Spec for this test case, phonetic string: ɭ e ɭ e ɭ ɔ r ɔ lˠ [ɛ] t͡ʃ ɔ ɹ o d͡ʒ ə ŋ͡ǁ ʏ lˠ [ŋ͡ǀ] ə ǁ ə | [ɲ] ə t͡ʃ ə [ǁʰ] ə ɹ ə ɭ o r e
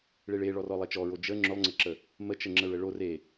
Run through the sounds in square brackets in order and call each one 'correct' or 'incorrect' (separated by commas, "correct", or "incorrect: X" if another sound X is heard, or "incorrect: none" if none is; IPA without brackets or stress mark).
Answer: correct, correct, incorrect: m, incorrect: ŋ͡ǁ